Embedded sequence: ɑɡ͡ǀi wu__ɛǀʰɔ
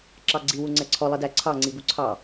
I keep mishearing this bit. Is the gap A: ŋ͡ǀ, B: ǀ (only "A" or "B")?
A